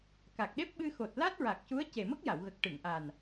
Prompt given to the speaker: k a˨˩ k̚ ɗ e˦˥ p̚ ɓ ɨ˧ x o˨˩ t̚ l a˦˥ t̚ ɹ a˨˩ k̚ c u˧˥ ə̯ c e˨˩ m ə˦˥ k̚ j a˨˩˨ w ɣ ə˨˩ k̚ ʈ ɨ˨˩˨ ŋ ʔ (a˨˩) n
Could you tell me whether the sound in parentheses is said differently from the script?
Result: no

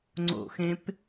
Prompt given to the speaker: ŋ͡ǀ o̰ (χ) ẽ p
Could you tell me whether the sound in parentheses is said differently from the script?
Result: yes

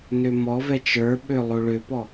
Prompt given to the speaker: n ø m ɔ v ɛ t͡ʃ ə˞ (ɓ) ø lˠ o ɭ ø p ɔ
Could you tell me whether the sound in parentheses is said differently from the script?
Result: no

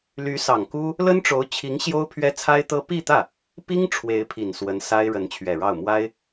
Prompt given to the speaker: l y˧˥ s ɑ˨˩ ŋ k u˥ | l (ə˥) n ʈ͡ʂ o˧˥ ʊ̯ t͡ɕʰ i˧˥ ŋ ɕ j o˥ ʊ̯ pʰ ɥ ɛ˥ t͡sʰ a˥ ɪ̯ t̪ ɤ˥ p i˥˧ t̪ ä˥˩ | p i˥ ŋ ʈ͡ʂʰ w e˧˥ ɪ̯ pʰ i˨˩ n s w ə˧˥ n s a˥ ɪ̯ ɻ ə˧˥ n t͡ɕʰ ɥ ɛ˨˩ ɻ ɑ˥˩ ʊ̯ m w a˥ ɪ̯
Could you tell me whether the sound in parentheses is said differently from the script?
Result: no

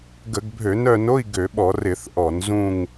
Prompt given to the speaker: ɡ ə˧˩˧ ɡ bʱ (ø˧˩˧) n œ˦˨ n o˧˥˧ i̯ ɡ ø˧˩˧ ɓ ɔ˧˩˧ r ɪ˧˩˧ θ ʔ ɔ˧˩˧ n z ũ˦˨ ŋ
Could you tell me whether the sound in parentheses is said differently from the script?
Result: no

